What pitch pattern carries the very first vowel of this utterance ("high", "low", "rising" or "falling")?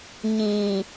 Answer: low